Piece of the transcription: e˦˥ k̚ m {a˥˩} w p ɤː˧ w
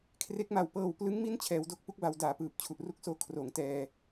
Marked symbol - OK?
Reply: no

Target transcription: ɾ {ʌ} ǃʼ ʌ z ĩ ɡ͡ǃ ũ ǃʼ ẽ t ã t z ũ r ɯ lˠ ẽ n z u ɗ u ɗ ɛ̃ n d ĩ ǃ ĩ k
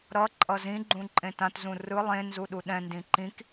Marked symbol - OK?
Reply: yes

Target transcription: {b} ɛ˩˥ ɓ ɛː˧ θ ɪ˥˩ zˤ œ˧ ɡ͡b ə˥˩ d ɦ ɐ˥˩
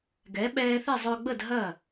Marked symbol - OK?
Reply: no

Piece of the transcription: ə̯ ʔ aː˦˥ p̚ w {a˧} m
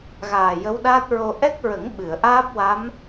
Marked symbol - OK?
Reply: no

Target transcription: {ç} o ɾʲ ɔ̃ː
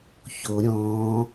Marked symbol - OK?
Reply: yes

